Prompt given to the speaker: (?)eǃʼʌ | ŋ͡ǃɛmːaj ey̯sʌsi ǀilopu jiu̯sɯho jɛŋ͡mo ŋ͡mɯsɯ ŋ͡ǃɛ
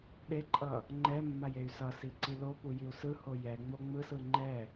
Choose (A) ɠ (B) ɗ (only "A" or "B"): B